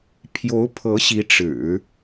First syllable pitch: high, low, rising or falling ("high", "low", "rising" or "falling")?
rising